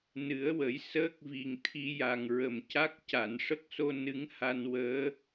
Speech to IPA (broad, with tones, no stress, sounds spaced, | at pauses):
n ɨ˨˩˦ ə̯ w ə˨˩˦ j s əː˦˥ k̚ v i˨˩ ŋ t̪ʰ i˧ j a˨˩ ŋ ɹ ə˨˩ m c a˦˥ k̚ c a˨˩˨ n ʂ ə˦˥ k̚ s o˧ n ɨ˧˥ ŋ h a˧ n w əː˧˥